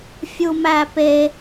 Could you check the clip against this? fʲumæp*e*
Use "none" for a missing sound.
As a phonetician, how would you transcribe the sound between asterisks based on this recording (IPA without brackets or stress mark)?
e